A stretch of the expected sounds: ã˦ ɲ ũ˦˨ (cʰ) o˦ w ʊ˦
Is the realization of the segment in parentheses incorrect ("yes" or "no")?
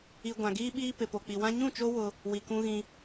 yes